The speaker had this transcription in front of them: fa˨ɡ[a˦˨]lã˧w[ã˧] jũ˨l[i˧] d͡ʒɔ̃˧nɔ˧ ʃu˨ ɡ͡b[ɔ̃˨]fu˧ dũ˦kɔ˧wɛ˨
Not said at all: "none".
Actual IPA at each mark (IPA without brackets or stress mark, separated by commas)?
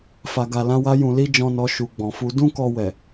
a˨, a˧, i˧, ɔ̃˨